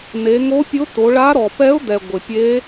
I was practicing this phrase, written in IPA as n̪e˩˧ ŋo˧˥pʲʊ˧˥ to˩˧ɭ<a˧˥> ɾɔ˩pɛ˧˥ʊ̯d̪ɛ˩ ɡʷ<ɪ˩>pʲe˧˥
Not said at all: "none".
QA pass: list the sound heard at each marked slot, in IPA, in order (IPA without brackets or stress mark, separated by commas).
a˧˥, ɪ˩